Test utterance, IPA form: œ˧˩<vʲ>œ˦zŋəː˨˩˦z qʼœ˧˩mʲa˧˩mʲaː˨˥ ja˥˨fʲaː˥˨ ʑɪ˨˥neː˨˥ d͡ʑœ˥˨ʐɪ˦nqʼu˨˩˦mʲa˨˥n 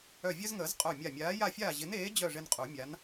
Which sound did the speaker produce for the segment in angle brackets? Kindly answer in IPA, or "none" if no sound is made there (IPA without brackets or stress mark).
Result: vʲ